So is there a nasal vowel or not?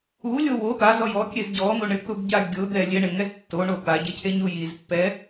no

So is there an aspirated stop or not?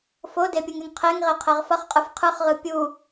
yes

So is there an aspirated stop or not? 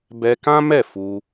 no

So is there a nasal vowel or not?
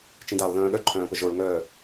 yes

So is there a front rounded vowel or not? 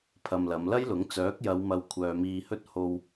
yes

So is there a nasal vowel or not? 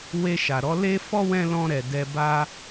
yes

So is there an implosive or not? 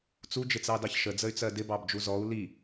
no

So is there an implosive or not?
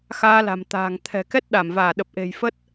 yes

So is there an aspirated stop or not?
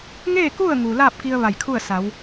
yes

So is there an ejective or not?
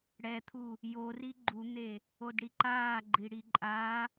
yes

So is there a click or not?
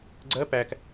yes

